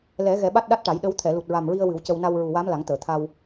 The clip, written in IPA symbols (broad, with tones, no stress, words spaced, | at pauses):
lɛ˨˩˦ ɣɛ˨˩˦ɓa˦˥t̚ɗa˦˥t̚ ʈa˨˩˦j ɗə˧˥w t̪ʰɛ˨˩˨lu˨˩t̚ɹa˨˩mɹi˧ə̯ wɨ˨˩˦wcə˧w na˧wɹu˨˩wa˧˥m la˨˩˦ŋt̪əː˨˩˨t̪ʰa˧w